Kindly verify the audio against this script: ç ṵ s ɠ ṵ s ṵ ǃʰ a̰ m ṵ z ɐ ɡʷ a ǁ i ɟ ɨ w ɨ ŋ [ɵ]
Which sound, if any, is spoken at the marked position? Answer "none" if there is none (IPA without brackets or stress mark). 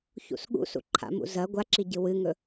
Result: ɵ